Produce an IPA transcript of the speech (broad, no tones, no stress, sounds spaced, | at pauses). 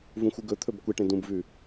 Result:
v ũ xʷ ɨ ɡ ɵ t̪ʰ ɵ b kʷ e ʈ ẽ d ũ b v ʉ